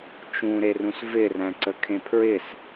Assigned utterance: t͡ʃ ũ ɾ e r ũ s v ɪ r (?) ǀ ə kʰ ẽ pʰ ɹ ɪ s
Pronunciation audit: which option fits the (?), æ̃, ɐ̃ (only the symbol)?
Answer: æ̃